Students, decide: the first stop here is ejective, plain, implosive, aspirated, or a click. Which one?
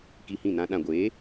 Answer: plain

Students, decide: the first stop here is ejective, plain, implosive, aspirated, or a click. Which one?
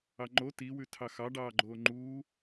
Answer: click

